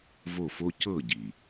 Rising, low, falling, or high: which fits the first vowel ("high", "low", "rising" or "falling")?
falling